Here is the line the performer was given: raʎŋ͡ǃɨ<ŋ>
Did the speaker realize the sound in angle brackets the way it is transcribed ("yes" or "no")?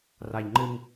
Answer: yes